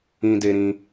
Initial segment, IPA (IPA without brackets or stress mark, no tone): ĩ